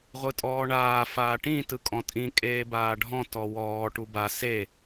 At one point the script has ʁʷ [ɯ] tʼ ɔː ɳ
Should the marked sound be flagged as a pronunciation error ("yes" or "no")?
no